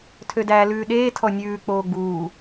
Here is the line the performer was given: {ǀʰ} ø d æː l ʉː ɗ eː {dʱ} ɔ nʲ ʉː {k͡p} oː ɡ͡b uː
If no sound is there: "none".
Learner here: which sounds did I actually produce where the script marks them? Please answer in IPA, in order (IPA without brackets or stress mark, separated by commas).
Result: tʰ, tʰ, k͡p